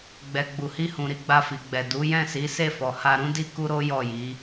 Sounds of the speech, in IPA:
ɡ͡b ɛ˨ ɡ͡b u˨ h i˧ h ũ˨ ɾ i˨˦ ɡ͡b a˧ f i˨ ɡ͡b ɛ˨ d u˨˦ j ɛ̃˦˨ s i˨˦ s e˦˨ f ɔ˨ h a˧ ɾ ũ˦ d i˦ k u˦ ɾ o˦ j ɔ˦˨ j i˨˦

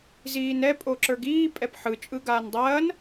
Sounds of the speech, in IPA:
z iː n ɛ pʼ o ǁ ə˞ ɡ iː pʼ ɛ p ħ ɯ t͡ʃʼ ɯ ɡ aː n dˤ ɐː n

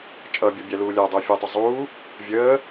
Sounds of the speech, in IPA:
t͡ʃʼ ʌ bʲ ʌ bʲ æ l uː lʲ æ dˤ ʊː fʲ ɛ tˤ ə zˤ uː | vʲ əː

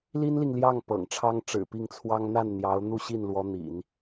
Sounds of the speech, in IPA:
l i˥ n l i˨ ŋ l j ɑ˥˩ ŋ p ɤ̰˨˩ ŋ ʈ͡ʂʰ ɑ˥ ŋ ʈ͡ʂ ɻ̩˨˩ p i˥˩ ŋ t͡sʰ w ɑ˥ ŋ n̪ a˥˩ n n̪ j ɑ˧˥ ʊ̯ n̪ u˥˧ ɕ i˥˩ n l w ɔ˧˥ n̪ ḭ˨˩˦ n

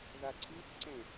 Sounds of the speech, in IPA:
ð a ǀʰ i f ǀ ẽ

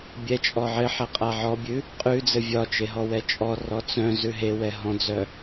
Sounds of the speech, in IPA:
bʲ ɛ t͡ʃʼ ɔ ʕ ɘ ħ ɛ qʼ a ʕ ɔ bʲ ʉ | qʼ ʉ d͡z ɘ vʲ ɒ t͡ʃ e ɦ ɔ w ɛ t͡ʃʼ ɔ r ɔ t͡s œ̃ z ʉ ɦ e w ɛ ɦ ɔ̃ d͡z œ

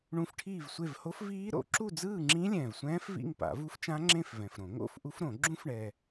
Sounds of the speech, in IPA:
ɳ ũ˦˥ f ʈʰ iː˥˧ v sʷ e˥˧ v h o˦˥ f v iː˦˥ ɾ o̰˨˩˦ ǁ u˥˧ d͡z ɯː˥˧ ŋ͡ǁ ĩ˦˥ lʲ ɛ̃ː˨ v sʷ ɛ̃ː˦˥ f v ḭ˥˧ ŋ p a̰˨˩˦ v u˦˥ f t͡ʃ ã˦˥ ŋ͡ǁ ẽ˥˧ f v ɛ̃˨ f ɾ õ˨˩˦ ŋ o̰˥˧ f ʔ u˦˥ f ɾ õ˨˩˦ ɡ͡ǁ ũ˦˥ f ɳ ɛ˨

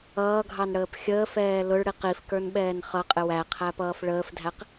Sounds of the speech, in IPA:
ʌː ɡʱ ɑ n ɽ əː p xʲ əː f ɛː l ʊ ɭ ɽ i q i f k ə˞ n ɓ ɛː n χ ʌ qʼ ɪ w æ qʰ æ p ʌː f ɭ əː f dʱ æ q

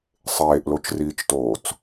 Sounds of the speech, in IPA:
sˤ eː ʔ l o t͡ʃ r iː t͡ʃ t oː t͡s

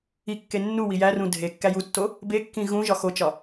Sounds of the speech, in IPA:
i kː e nː u w i j æ r ũ dʱ e kː æ j u tː o | b e kː ĩ ɣ ũ ʒ ɒ x o t͡ʃ ɒ

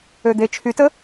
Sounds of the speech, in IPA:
ø d̪ e t͡ʃʰ y t ə

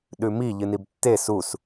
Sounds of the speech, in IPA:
ɗ ʉ m i ʎ ɨ n i b tː e s u s

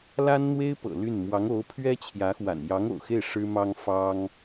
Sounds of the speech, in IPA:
l a˥ n n̪ w e˥ ɪ̯ p ɤ̰˨˩ l y˥˩ n m w ɑ˧˥ ŋ o˧˥ ʊ̯ pʰ ɥ ɛ˥ t͡ɕʰ j ä˧˥ x w a̰˨˩ n j ɑ˧˥ ŋ o̰˨˩ ʊ̯ x e˥˩ ɪ̯ ʂ ɻ̩˥ m ɑ˥ ŋ f ɑ˥ ŋ

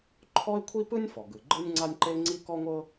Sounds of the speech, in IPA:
ǃʰ ɔ˥ ɪ̯ kʷʰ i˥ p ɯ˥ nʲ f ɔ˩ ɡ ɯ˩ ɡ͡ǃ ɯ˥ nʲ ŋ͡ǀ a˥ nʲ ǃ e˥ ŋ͡ǀ i˥ k ɔ˥ ŋʷ ɤ˥

